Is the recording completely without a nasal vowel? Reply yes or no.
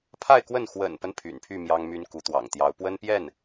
yes